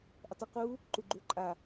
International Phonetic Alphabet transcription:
ʔ ə tˤ ʊ q u | ǃ u ɡ͡ǃ u ǃʼ a

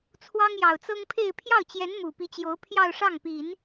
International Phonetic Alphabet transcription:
t͡sʰ w ɑ˥ ŋ j ɑ˨˩ ʊ̯ t͡s ɤ˥ ŋ pʰ e˥˧ ɪ̯ pʰ j ɑ˥˩ ʊ̯ t͡ɕ j ɛ˧˥ n m u˨˩ p i˧˥ t͡ɕ j o˧˥ ʊ̯ pʰ j ɑ˥˧ ʊ̯ ʂ ɑ˥˩ ŋ p i˨˩˦ n

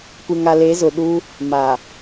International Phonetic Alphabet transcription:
kʷ ɪ˨ ŋ a˨ l e˨˦ z ʊ˨ ɗ u˦ | m a˨

